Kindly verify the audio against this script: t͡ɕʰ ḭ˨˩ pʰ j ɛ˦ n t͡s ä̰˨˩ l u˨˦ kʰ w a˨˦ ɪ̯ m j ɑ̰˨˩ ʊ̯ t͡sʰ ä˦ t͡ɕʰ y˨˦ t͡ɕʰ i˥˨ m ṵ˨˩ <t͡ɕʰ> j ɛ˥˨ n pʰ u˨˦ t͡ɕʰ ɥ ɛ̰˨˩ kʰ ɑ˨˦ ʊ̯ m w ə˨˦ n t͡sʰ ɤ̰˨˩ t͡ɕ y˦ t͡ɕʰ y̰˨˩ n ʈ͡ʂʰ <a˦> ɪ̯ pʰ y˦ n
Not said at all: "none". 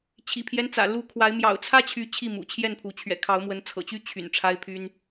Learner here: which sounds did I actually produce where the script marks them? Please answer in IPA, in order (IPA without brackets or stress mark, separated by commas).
t͡ɕʰ, a˦